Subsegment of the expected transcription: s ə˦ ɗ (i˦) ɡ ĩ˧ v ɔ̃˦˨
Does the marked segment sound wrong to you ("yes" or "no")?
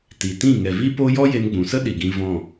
yes